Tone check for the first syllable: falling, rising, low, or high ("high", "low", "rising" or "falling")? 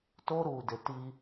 high